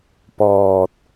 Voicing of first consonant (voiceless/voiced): voiceless